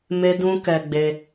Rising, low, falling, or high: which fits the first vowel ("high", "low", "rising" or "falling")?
high